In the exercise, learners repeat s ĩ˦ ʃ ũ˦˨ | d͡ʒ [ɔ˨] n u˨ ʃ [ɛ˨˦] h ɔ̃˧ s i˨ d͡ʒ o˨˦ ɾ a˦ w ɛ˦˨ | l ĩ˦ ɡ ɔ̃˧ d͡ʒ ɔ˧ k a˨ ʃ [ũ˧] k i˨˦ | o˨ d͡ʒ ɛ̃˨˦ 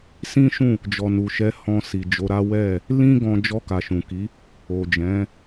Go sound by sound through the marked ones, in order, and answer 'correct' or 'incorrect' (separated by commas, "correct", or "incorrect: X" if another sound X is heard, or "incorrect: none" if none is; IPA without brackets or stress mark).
correct, correct, incorrect: ũ˨